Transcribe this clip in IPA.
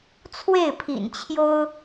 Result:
t͡sʰwe˥˩ɪ̯pʰḭ˨˩nt͡ɕʰjo˥ʊ̯

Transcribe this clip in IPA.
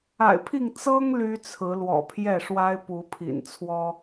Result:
a̰˨˩ɪ̯pʰi˥˨ŋ t͡sɤ˦ŋ ly˦t͡sʰɹ̩˨˦lwɔ̰˨˩ pʰjɛ˥˨ʂwa˦ɪ̯ pu˨˦pʰḭ˨˩n t͡sʰwɔ˦

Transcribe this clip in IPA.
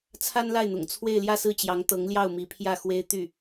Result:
t͡sʰa˥nla˥˩ɪ̯n̪ʊ̰˨˩ŋ t͡sʰwe˥˧ɪ̯ljä˥˧sɹ̩˥˩t͡ɕjɑ˧˥ŋ t̪ɤ˧˥ŋljɑ˥˩ʊ̯mi˧˥pʰjä˥˩ xwe˥ɪ̯t̪y˥˩

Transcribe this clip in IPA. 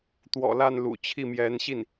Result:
t̪wɔ̰˨˩la˥˩nlṵ˨˩ t͡ɕʰi˥˩ mjɛ˧˥nɕi˥˩n

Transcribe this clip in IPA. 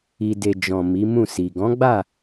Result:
i˨de˨ d͡ʒɔ̃˨ mi˨˦mũ˦˨si˨ ɡɔ̃˨˦ɡ͡ba˦˨

